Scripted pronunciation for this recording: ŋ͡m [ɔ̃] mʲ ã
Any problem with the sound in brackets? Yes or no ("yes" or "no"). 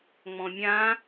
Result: no